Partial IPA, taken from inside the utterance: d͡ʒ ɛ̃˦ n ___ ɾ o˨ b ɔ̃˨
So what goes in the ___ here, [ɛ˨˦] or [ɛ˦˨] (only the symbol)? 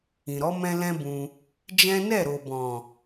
ɛ˦˨